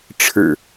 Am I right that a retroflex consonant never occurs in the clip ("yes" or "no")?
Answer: no